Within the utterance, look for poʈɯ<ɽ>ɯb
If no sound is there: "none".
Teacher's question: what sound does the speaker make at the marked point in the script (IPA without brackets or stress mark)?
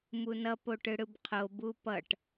ɽ